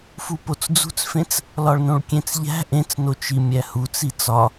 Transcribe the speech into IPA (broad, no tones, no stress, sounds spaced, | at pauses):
f u p o t͡s d͡z ṳ t͡s f ẽ t͡s | l ɒ ɭ n õ ɭ kʲ ẽ t͡s ʎ æ̤ ʔ ẽ t͡s n o t͡ʃ i mʲ æ h u t͡s i t͡s ɒ